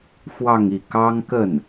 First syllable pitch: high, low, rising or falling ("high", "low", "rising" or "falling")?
falling